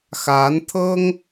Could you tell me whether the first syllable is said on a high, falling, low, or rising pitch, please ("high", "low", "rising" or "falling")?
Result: rising